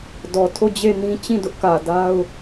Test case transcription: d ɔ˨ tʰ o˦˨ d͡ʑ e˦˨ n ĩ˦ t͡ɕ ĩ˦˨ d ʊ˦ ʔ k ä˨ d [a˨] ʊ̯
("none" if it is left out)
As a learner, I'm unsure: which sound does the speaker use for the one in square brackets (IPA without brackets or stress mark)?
a˦